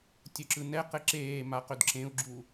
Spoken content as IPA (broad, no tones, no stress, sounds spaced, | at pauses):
tʲ ɵ ǁ ɯ n ɛ q ɘ ǁ eː m a q ɵ d ǁ ẽ u̯ ɡ͡ǁ u